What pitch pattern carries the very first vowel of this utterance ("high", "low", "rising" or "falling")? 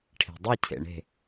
low